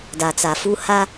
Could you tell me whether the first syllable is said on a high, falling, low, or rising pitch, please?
low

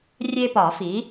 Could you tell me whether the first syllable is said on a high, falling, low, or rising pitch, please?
high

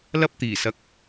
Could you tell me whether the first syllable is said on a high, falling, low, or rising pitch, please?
high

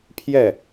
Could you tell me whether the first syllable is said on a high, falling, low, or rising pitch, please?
falling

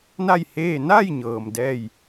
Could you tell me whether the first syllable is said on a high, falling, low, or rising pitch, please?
falling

